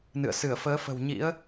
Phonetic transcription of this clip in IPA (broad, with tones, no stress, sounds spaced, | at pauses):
n ɨ̰˧˨ ə̯ s ɨ˧˩ ə̯ f əː˨˦ f ə̤˨˩ w ɲ ḭ˧˥ ə̯